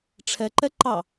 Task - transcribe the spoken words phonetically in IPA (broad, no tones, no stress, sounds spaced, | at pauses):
ʈ͡ʂʰ ɛ ǃ ɛ ǃ ɑ